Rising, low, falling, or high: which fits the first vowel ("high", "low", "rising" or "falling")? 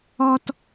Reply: high